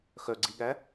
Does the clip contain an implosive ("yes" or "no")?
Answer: yes